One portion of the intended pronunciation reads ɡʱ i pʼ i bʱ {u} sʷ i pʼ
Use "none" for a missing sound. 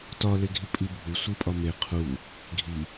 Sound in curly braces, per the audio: u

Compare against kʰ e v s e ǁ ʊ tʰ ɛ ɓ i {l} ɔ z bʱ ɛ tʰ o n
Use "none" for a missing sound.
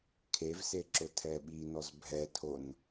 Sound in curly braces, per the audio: n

